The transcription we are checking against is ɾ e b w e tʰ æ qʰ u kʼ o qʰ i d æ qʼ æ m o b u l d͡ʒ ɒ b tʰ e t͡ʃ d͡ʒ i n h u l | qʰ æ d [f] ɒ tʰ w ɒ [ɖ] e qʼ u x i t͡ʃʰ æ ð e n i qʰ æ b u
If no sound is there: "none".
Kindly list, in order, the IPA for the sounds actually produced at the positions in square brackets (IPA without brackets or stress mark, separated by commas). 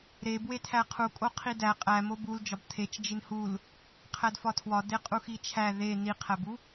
f, d